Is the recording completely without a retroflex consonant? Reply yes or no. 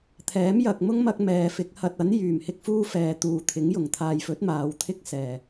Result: yes